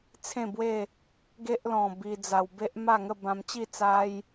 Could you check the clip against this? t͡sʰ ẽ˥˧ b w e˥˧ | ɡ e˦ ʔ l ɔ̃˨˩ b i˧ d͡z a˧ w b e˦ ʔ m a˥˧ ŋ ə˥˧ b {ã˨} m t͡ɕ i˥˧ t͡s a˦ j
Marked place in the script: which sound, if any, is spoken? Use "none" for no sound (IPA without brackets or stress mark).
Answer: ã˧